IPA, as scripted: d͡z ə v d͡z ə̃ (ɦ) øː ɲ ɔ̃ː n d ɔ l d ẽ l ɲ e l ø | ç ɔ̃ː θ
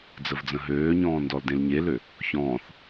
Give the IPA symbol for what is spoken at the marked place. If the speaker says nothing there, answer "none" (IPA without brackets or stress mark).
ɦ